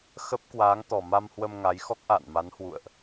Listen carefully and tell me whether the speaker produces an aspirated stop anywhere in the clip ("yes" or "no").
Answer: no